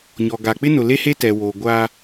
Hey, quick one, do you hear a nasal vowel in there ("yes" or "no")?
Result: no